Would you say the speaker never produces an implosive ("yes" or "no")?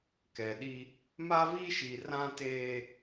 no